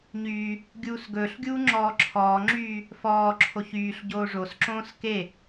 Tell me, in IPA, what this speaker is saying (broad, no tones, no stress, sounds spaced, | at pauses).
ɲ yː | ɡʲ uː s ɡ ɵː ɬ ɡʲ uː ŋ͡ǁ ɔː ǁʰ ɔː ŋ͡ǁ yː | f ɔː ǁʰ o ç yː ɬ ɟ oː ʐ o s ǁ õː s k e